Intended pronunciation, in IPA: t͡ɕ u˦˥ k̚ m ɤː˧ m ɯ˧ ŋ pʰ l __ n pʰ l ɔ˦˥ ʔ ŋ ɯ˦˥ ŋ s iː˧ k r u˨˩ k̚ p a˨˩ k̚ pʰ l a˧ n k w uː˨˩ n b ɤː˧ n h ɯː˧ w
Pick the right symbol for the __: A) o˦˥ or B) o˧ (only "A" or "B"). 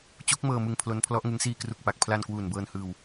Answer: A